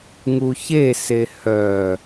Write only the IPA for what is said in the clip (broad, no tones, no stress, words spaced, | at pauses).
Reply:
ŋuçese hœ